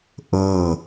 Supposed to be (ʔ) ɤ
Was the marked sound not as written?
no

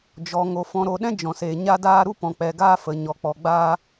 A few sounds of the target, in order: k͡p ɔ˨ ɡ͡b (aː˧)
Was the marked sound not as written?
no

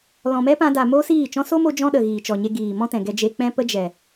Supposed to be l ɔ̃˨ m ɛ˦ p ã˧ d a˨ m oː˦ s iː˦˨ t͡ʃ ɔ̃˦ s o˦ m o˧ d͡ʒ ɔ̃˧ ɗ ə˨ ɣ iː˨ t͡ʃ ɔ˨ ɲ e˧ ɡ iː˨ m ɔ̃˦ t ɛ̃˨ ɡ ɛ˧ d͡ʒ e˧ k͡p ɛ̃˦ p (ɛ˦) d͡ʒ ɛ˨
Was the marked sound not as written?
yes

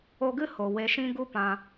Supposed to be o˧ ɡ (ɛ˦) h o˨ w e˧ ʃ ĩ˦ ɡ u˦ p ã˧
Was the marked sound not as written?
yes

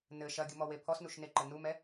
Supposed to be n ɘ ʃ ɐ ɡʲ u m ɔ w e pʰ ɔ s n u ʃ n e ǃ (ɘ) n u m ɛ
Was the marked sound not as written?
no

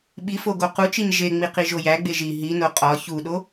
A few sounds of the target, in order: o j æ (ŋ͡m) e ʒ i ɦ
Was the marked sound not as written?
yes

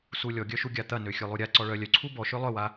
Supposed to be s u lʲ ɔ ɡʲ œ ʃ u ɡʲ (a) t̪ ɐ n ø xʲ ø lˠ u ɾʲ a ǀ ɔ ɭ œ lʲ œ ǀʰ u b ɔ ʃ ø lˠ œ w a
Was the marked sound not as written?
no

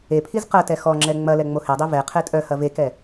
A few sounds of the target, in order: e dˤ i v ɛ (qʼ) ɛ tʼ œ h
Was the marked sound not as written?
yes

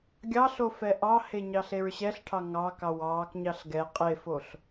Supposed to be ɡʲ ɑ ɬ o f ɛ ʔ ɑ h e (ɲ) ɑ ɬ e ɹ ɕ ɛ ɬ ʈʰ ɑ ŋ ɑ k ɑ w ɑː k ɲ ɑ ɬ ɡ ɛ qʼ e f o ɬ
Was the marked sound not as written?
no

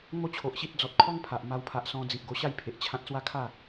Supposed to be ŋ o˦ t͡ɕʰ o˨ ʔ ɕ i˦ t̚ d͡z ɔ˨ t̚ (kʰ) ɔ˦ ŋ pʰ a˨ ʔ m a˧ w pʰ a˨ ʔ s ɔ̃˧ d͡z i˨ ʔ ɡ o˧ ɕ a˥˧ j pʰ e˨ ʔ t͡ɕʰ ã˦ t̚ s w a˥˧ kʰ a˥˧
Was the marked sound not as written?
no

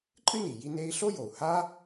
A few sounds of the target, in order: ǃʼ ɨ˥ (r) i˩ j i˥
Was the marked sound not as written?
yes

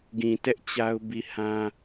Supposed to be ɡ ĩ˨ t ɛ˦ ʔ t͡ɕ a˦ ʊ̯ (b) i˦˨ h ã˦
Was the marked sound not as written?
no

